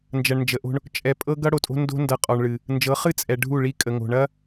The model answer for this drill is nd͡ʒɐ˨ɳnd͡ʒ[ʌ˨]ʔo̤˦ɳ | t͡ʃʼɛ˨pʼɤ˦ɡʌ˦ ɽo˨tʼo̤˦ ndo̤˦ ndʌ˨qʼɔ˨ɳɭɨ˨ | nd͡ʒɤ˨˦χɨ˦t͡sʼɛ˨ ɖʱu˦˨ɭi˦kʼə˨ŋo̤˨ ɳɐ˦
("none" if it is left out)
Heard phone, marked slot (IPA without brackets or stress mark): ə˨